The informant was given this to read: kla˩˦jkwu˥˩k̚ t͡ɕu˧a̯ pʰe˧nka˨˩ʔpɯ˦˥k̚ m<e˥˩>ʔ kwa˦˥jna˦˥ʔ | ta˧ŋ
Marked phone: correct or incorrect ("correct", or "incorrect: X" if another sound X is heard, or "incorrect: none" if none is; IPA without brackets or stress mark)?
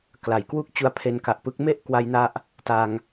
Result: correct